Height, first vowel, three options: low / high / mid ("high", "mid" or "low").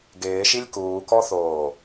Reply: high